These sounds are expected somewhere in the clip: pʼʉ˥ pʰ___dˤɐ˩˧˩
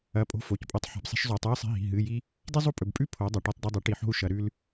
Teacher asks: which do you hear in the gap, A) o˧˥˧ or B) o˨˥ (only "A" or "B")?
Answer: B